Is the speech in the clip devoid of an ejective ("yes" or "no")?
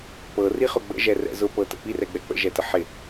yes